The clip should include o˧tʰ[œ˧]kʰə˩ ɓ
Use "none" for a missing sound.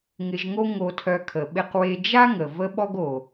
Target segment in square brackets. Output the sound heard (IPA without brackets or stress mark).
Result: œ˧